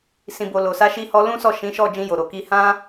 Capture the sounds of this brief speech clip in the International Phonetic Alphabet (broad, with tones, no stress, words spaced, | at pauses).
sĩ˨bo˨ lo˨sa˧ʃi˧ hɔ˦ lũ˦sɔ˦˨ʃĩ˨˦ʃɔ˦˨ d͡ʒĩ˧jo˨ɾo˨ki˧ hã˦